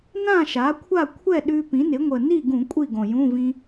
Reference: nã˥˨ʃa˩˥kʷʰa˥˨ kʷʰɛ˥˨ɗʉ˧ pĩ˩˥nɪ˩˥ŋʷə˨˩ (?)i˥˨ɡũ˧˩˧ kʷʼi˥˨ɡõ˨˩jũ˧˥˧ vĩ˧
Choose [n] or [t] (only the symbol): n